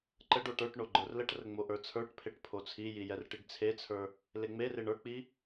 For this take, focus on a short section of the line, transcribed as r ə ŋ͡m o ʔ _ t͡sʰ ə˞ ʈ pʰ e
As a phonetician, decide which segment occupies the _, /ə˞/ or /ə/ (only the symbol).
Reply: ə˞